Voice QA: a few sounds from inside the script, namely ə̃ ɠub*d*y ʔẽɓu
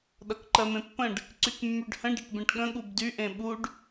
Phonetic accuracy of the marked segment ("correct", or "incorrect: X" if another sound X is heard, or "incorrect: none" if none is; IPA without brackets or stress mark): correct